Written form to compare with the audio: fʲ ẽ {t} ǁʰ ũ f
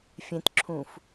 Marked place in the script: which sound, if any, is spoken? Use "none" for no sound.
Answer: t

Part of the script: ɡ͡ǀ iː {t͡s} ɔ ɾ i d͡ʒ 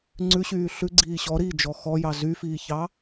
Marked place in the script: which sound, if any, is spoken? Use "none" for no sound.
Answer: ɕ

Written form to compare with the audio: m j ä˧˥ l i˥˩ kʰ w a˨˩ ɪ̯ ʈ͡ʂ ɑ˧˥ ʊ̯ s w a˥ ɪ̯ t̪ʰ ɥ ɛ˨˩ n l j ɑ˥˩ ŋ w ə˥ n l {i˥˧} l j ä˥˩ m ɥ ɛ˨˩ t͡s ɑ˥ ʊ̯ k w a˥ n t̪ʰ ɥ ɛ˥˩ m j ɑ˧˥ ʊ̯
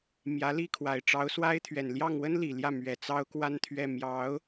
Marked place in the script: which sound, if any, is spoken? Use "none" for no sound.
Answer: i˨˩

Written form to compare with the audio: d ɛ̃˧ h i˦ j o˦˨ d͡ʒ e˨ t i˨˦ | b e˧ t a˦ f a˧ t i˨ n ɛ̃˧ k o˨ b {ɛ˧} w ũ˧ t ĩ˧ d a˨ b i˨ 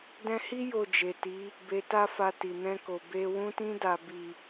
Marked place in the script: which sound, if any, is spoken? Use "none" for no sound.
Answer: e˧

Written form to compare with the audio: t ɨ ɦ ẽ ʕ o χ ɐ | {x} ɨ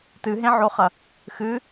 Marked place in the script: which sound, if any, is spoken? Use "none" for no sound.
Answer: x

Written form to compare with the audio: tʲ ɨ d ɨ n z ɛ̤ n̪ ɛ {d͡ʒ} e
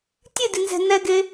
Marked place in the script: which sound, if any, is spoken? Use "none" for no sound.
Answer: ɡ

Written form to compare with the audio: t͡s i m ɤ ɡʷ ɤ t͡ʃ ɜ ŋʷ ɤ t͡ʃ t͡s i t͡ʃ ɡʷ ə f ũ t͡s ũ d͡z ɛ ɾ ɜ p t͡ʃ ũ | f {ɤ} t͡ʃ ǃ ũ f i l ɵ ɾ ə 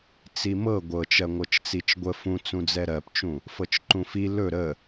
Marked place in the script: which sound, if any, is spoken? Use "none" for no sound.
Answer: ɤ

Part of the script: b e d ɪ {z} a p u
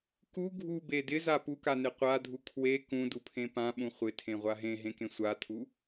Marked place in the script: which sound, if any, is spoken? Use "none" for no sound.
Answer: z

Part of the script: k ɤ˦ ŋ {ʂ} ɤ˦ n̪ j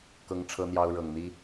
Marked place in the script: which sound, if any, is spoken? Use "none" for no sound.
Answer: ʈ͡ʂʰ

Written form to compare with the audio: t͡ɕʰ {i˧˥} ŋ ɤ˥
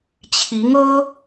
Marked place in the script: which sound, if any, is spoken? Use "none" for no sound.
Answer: i˧˥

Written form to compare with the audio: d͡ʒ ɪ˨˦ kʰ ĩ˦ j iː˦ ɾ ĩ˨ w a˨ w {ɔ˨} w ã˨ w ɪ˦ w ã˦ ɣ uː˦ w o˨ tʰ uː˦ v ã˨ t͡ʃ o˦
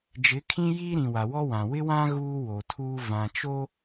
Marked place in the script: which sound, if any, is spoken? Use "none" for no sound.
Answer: ɔ˦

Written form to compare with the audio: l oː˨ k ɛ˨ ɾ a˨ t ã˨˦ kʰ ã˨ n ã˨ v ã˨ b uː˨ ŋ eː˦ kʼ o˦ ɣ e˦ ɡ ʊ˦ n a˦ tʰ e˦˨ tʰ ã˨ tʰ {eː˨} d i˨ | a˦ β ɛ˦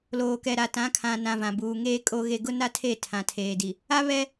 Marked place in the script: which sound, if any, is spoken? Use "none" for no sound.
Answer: eː˨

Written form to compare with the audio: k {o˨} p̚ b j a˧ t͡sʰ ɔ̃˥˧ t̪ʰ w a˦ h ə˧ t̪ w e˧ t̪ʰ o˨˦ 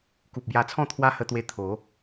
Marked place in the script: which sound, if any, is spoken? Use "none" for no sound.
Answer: u˨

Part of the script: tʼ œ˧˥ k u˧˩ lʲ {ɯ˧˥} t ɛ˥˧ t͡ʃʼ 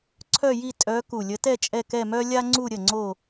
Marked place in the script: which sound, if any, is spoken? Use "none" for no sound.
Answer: ə˧˥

